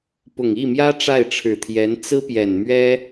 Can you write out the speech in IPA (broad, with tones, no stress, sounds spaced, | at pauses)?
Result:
p ʊ˨˩ ŋ i˥˩ m j ä˥ ʈ͡ʂ a˥˩ ɪ̯ ʈ͡ʂʰ ɻ̩˨˩ t̪ʰ j ɛ˧˥ n t͡s ɹ̩˥ p j ɛ˨˩ n m ɥ ɛ˥